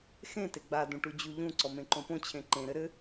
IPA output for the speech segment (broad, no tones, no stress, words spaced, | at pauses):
xẽte ɡ͡badũ ʈud͡ʑuʎũǀɔ mẽǃõpõt͡ɕʰẽ ǃẽɾɘ ɾɘ